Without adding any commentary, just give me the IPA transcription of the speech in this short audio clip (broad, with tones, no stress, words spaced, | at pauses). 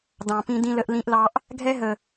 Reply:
dɑ̃˨pĩ˦ dĩ˦lə˦ʔlĩ˦ʔlɑ˦ʔ | ɡʱɛ˦ɦə˨